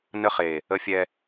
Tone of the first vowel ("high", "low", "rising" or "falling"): high